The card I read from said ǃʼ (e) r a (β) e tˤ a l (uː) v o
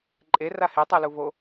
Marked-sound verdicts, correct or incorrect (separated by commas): correct, incorrect, incorrect